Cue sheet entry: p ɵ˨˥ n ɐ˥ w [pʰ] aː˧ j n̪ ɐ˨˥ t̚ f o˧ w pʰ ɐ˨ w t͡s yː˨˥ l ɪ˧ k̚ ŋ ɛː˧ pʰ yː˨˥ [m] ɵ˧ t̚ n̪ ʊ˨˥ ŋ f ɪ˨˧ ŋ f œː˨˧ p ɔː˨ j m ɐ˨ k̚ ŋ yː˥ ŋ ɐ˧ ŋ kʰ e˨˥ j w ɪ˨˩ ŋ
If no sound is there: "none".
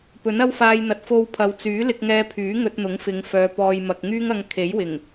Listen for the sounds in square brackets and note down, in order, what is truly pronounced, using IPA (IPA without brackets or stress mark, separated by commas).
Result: f, ŋ